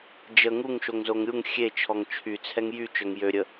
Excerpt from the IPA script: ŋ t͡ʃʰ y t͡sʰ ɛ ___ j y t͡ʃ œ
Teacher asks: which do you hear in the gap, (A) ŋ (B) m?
A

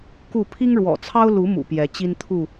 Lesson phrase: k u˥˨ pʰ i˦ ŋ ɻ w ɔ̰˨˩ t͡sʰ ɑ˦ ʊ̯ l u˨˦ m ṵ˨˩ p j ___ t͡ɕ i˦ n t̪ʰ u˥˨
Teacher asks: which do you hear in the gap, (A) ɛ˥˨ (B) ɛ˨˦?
B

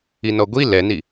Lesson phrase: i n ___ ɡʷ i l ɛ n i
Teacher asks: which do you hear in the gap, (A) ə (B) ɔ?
B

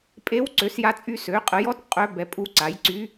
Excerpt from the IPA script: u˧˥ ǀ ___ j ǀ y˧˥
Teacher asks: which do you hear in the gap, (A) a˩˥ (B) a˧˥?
A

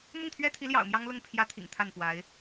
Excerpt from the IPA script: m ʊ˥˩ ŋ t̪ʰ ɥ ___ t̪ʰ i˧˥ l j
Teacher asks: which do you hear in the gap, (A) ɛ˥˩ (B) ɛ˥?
B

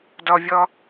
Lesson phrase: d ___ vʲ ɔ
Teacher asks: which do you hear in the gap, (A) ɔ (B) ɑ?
A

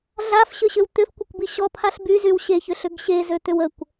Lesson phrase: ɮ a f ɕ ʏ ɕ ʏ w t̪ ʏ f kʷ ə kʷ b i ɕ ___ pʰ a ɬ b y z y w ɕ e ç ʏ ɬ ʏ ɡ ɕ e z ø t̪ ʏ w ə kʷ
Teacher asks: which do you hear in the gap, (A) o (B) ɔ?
B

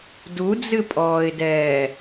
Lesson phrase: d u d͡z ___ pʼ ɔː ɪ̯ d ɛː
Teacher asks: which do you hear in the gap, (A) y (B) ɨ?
B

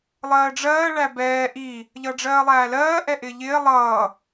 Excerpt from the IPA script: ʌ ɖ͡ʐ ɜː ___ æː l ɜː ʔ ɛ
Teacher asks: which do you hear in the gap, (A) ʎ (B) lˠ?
B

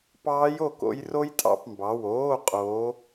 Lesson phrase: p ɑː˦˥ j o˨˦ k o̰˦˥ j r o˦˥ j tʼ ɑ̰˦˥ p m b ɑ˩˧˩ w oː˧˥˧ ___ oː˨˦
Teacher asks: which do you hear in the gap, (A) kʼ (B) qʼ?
B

